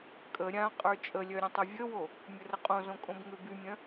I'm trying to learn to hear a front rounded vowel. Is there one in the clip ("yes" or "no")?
yes